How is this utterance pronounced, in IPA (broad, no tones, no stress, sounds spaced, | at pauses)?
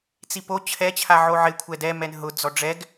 t͡s i p o t͡ɕʰ ɛ t͡ɕʰ a ʕ o ʕ ɪ kʷʰ ɛ d ɛ m ɛ n ɦ ʊ d͡z ɔ ɖ͡ʐ ɛ ɡ